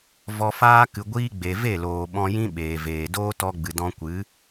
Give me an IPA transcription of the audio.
vɔ˧faː˦ kɨ˨ɡʷiː˧ ɡ͡be˨ve˦˨loː˨ ɓɔ̃˧jĩ˦ɓeː˨veː˨ doː˦tɔ˧ɡ͡bɨ˨ dɔ̃˧kʷɨ˨˦

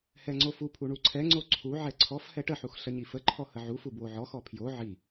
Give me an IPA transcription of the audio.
hɛŋ͡ǀofupʰu ɳuǀʰɛŋ͡ǀo ǀʰuʕɛ ǀʰɔf hɛʈəħux ɬəɲifəǃʰɔ həʕufu bwoʕɔxɔ pʰjo ʕi

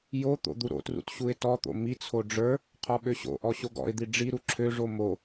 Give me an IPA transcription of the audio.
jot̪o̰ d̪uɾo̰trṵt ɕuɪ̯tɔt̪o̰ mit͡sʰo ɖ͡ʐə˞ | qʰɔɓøɕo̰ʔɔ ɕoɡɔ̰ɪ̯d̪i ɖ͡ʐiɾu ǁʰøʐo mo

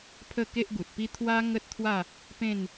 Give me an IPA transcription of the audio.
pʰə˥˧ke˦ʔɡu˨t̚pi˦ t̪ʰwa˦ ŋə˦t̚t̪ʰwa˥˧ | pẽ˥˧n

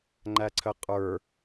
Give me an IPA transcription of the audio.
ŋ͡ǃæǀʰəqʼə˞

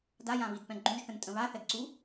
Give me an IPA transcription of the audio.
dajãβidpɛ̃ ɡ͡ǃũʒθə̃ntʼə̃ βaθɛɡǀu

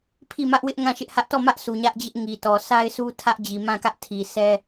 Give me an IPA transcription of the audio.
pʰi˦˨mä˦ʔwɪ˦ʔ ŋã˦˨ʃɪ˦ʔhä˦ʔ tɔ˦˨mä˦ʔsu˨ ɲä˦ʔd͡ʑɪ˦ʔ ŋi˨tɔ˨ sʰa˦ɪ̯sʰu˦ tʰä˦ʔd͡ʑi˨ mã˦˨kä˦ʔ tʰi˨ sɛ˦

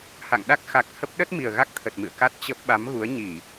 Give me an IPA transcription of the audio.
ha̰˧˨ŋ ɗa˦˥k̚xa˨˩k̚ hə˦˥p̚ ɗə˦˥t̚mi˨˩ə̯ ɣa˦˥k̚t̪ʰə˨˩t̚mɨ̰˧˨ə̯ ka˦˥t̚ t͡ɕə˦˥p̚ ɓa˨˦mɣu˨˦ə̯ɲi˧˩˨

